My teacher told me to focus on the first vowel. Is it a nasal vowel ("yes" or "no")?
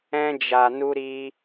yes